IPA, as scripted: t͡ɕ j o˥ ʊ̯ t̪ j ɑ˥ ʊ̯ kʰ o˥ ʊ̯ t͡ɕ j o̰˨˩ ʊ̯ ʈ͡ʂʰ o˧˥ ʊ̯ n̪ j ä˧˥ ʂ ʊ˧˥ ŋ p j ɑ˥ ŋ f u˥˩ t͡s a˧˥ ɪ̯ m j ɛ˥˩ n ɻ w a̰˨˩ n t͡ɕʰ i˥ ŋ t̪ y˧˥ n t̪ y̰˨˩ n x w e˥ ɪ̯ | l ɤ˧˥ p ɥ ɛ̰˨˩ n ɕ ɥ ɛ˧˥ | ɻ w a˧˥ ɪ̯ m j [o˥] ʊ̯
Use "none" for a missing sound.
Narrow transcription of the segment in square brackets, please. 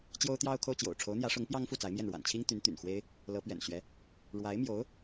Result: o˧˥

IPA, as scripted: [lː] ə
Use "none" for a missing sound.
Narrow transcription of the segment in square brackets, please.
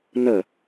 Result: n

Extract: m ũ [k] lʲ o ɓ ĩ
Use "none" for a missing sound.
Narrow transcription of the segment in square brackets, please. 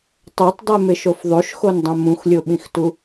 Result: x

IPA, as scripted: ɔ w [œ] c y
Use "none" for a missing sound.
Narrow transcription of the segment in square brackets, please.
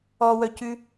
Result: œ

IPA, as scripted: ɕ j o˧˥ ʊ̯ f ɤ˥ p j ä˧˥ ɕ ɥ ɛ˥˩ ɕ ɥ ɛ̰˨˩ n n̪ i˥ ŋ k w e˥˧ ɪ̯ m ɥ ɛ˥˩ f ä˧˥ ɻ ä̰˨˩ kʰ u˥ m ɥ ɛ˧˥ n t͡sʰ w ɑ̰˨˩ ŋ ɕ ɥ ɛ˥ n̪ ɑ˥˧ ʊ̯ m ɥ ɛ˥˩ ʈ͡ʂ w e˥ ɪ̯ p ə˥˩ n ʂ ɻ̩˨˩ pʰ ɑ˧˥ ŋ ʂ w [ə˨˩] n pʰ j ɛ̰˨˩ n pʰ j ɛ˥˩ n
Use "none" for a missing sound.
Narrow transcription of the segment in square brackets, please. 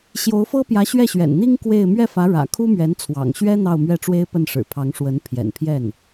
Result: ə˧˥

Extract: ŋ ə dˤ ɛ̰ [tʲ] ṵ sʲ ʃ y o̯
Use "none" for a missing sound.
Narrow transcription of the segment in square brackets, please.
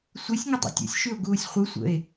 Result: tʲ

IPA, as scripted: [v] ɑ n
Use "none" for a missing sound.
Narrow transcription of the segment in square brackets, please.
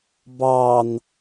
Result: b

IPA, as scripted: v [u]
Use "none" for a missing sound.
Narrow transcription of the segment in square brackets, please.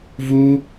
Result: u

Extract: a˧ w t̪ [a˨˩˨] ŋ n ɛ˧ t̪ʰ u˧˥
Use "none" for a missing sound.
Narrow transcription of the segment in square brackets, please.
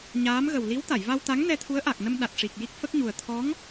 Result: a˧˥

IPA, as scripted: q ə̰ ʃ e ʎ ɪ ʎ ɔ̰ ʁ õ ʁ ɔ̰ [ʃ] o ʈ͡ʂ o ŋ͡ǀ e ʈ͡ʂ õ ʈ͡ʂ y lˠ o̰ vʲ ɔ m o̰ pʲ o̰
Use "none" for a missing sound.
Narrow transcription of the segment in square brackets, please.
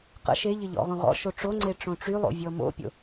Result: ʃ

